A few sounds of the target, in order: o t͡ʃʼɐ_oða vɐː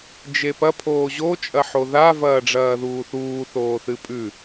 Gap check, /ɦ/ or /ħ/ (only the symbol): ħ